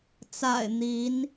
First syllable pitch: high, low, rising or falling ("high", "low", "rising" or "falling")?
low